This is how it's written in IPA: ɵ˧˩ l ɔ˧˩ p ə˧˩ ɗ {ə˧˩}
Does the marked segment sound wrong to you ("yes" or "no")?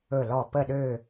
yes